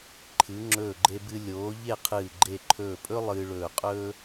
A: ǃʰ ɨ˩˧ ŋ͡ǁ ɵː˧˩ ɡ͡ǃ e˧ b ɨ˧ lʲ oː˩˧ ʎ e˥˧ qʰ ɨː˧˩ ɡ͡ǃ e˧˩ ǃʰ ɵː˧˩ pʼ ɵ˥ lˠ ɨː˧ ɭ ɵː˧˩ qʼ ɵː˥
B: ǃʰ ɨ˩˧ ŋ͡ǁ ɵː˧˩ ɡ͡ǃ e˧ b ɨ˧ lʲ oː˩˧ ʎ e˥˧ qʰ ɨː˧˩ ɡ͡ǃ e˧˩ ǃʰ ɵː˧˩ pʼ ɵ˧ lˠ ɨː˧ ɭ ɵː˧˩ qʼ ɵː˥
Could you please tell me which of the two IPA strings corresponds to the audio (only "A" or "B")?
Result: A